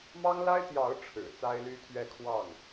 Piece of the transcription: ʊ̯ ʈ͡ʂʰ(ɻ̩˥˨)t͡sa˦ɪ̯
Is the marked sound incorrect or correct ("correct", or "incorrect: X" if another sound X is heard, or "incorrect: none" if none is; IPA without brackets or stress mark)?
incorrect: ɻ̩˨˩